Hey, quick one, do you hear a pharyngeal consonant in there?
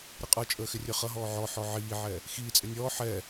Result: yes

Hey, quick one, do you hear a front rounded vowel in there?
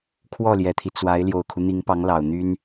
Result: yes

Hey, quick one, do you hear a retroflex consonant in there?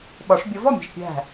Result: yes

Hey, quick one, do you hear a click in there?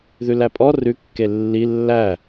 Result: no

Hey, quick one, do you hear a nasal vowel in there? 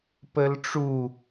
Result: no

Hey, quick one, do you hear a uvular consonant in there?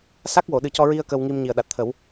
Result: no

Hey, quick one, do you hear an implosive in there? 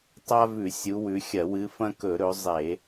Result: no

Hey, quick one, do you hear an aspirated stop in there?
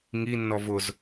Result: no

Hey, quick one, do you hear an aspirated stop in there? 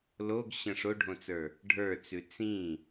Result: no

